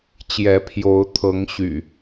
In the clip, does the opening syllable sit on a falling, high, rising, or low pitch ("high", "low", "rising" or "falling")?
rising